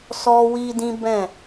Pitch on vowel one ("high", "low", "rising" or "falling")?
high